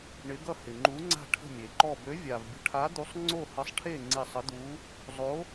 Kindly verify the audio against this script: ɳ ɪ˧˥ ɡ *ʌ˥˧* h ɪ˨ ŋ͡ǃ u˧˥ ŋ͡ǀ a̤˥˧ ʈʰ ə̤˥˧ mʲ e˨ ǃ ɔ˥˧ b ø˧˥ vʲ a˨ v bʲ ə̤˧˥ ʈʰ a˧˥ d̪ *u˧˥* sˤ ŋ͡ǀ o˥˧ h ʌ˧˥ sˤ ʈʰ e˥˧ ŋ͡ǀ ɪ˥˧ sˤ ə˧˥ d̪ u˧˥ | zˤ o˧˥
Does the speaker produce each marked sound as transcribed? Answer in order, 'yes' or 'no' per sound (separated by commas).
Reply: yes, yes